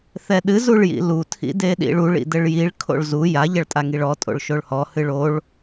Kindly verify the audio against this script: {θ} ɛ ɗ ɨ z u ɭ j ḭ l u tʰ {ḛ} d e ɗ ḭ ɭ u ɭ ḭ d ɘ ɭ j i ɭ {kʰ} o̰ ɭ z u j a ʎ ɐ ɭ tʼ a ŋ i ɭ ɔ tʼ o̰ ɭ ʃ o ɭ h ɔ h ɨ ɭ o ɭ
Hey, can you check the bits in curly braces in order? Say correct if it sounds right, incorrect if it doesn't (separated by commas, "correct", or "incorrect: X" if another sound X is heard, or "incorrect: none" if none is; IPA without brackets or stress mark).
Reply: correct, incorrect: ḭ, correct